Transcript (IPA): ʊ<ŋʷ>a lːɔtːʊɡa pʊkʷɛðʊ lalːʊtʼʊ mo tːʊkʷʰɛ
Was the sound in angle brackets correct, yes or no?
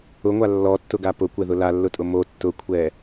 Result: yes